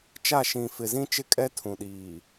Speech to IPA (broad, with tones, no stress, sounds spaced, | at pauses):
t͡ʃ a˦˨ ʃ ĩ˨ f ɪ˨ z ĩ˦ t͡ʃ ɪ˦ kʼ ɛ˦ tʰ ũ˨ ɗ iː˨